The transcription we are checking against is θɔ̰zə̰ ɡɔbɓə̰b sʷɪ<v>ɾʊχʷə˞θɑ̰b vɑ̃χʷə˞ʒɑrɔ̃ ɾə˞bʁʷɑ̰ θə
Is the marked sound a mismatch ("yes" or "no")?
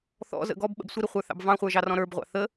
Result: yes